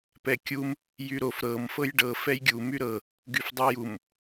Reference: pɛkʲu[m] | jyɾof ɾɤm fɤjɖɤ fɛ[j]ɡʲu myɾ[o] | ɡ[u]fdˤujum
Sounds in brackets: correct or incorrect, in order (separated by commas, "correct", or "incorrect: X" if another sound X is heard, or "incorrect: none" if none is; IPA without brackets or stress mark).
correct, correct, incorrect: ɤ, incorrect: y